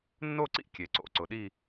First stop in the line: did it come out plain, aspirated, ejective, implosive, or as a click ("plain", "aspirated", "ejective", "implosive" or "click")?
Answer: click